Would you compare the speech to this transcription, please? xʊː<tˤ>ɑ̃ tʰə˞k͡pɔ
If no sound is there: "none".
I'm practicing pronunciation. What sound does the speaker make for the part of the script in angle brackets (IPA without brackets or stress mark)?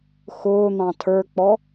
n̪